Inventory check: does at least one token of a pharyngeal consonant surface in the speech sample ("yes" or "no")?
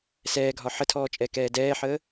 yes